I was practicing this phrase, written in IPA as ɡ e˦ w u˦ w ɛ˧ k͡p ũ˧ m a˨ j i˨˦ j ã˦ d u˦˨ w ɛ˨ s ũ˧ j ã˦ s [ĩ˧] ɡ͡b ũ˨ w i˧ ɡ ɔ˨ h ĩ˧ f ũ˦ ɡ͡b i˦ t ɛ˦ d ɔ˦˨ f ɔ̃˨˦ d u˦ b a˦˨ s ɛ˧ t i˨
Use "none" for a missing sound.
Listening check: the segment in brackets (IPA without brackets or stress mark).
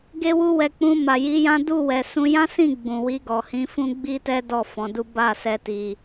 ĩ˦˨